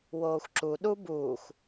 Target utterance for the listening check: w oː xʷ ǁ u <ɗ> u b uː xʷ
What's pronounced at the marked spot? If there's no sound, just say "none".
ɗ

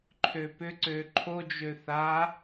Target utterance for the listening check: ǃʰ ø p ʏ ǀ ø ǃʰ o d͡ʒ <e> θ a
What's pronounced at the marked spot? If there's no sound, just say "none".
ø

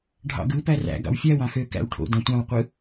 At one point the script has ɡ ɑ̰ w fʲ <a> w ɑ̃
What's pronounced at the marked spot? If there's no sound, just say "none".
æ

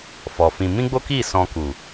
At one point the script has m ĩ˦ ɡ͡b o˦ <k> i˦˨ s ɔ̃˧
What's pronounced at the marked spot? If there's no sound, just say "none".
k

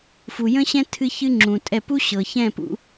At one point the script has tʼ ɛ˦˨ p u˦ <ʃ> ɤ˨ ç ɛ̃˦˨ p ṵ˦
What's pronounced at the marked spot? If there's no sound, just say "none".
ɕ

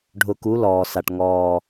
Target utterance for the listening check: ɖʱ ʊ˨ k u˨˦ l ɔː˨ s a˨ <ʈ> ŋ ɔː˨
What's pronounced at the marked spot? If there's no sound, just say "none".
ʈ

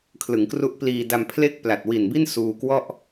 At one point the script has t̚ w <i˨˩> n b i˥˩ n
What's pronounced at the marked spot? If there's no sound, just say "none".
i˨˩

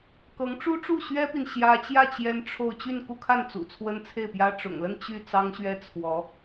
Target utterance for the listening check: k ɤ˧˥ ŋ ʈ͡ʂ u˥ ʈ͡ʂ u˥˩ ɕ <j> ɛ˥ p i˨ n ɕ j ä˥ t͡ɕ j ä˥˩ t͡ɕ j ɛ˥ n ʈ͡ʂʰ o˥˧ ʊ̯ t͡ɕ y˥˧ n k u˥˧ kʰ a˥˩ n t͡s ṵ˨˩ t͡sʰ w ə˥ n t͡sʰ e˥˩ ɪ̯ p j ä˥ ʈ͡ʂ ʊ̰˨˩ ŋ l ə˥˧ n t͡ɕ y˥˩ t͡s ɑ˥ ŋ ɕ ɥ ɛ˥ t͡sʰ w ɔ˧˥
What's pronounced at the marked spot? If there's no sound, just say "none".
ɥ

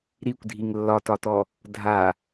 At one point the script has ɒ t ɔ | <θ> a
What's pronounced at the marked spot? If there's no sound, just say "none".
dʱ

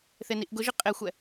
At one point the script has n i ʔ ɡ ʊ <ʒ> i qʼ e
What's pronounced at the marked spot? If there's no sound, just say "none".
ʒ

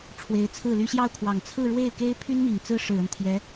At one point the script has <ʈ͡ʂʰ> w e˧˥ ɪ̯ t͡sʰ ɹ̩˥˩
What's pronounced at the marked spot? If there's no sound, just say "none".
ʈ͡ʂʰ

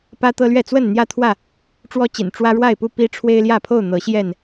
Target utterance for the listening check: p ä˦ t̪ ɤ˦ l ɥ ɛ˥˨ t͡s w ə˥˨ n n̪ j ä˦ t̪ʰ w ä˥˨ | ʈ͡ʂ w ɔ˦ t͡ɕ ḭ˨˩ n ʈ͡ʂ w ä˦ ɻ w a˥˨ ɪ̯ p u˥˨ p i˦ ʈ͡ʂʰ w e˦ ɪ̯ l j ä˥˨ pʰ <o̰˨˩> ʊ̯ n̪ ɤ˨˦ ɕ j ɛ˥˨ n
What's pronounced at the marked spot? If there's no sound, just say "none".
o˥˨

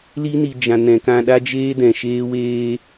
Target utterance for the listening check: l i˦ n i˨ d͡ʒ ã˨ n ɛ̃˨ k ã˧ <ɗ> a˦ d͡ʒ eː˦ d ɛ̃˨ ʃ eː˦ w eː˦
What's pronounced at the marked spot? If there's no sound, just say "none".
ɗ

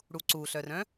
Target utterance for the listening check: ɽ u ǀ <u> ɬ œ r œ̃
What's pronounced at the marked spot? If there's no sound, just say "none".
u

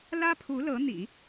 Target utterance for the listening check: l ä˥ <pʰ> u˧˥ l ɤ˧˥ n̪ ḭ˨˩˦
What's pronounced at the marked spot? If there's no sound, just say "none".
pʰ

